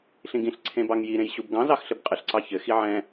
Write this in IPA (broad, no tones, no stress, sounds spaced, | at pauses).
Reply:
ɬ ĩ ɡ ĩ ɬ ǀʰ ẽ b ɑ ŋ j i ɾ ẽ j ɕ u b ɡ ɑ̃ z ɑ x ɬ ɘ b qʼ ɘ ɬ ǀ ɑ ç ɘ x i ʕ ɛ̃